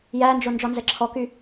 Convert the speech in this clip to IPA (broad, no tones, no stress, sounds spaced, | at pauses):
j æ n d͡ʒ o n d͡ʒ ɔ n z ɛ ǁʰ ɔ k y